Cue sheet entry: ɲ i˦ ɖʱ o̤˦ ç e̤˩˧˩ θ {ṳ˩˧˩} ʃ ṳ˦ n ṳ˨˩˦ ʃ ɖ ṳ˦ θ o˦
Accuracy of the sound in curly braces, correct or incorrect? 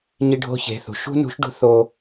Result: incorrect